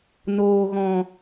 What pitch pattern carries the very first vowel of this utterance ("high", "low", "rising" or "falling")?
low